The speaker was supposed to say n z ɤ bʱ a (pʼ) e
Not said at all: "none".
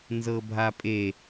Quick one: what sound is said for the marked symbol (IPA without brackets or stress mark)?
pʼ